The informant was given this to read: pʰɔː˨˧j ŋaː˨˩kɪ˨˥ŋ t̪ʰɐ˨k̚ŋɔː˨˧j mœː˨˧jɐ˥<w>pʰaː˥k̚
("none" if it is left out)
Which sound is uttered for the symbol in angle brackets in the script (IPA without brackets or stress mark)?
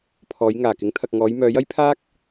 j